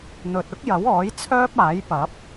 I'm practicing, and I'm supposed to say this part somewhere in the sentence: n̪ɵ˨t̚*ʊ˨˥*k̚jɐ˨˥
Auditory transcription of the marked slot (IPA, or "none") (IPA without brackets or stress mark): ʊ˥